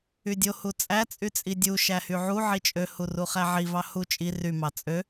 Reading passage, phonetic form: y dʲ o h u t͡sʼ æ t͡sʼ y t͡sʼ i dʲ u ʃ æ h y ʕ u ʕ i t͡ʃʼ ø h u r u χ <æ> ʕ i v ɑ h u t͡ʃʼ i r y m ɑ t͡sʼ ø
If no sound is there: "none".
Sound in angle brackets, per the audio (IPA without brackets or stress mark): æ